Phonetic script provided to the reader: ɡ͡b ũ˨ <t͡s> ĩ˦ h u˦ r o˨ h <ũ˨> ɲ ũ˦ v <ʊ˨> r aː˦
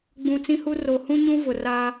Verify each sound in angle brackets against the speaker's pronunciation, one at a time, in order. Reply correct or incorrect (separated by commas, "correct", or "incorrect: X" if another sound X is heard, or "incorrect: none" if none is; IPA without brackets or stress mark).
correct, incorrect: ũ˦, correct